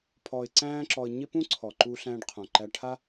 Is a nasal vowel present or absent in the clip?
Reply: present